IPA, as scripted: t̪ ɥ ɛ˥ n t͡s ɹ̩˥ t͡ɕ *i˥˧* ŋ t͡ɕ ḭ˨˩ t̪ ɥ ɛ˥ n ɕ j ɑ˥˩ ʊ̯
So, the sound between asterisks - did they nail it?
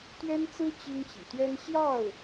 no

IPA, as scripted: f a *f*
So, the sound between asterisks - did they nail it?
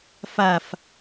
yes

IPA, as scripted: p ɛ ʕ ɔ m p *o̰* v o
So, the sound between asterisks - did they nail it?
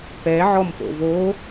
yes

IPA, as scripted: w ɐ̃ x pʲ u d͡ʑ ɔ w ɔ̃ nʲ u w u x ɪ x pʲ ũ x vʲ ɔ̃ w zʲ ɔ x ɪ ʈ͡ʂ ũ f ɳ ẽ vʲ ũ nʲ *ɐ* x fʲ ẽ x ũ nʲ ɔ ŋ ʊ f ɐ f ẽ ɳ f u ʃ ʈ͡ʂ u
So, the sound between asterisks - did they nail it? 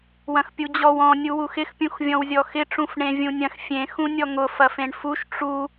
no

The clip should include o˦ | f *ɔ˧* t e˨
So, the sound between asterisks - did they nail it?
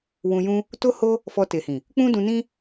yes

